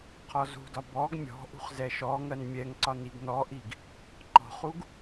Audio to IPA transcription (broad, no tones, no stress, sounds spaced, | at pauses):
qʰ ɔ z ṳ d ɒ b ɔ ɡ mʲ ɔ̤ ʔ ṳ χ z ɛ ʃ ɔ ŋ ɜ n mʲ ɛ ŋ ǀ ɒ n i ɡ n ɔ ʔ i ɡ | ǃ ɔ̤ χ u ɡ